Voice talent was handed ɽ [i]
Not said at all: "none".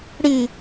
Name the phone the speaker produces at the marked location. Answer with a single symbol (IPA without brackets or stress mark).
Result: i